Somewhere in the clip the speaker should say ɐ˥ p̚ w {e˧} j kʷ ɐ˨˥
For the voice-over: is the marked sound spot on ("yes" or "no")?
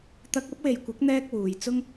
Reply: no